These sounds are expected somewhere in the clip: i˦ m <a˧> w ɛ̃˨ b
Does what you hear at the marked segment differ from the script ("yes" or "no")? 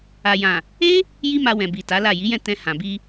no